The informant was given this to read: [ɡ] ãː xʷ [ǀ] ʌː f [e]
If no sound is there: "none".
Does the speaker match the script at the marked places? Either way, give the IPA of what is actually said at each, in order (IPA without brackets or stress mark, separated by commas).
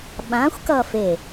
ɓ, k, e